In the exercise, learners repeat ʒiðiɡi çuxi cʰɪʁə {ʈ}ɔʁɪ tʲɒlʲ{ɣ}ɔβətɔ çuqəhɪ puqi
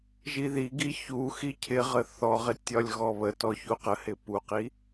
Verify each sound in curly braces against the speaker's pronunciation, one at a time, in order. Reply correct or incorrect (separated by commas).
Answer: incorrect, correct